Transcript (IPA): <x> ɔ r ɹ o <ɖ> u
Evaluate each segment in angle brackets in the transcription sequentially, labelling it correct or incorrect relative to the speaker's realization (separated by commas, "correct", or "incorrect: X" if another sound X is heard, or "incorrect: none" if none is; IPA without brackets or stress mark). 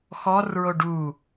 correct, correct